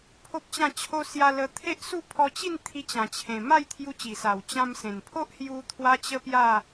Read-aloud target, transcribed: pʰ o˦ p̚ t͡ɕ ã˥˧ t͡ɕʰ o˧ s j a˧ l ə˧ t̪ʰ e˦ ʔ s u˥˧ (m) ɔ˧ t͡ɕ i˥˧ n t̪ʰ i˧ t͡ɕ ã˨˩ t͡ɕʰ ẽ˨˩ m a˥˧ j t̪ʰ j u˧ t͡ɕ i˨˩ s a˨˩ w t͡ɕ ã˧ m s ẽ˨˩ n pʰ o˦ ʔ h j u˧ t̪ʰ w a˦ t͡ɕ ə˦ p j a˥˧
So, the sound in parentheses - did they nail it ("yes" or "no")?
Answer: no